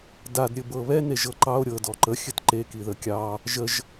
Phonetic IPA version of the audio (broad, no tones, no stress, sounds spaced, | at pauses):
d a d ɾʲ ɘ b ɤ β ɛ n e ʒ ɤ ǃ ɑ o̯ ɾʲ ɤ d ɔ ǃ ə xʲ ɘ t ǃ e k i ð ə kʲ ɑ | ʒ ə ʒ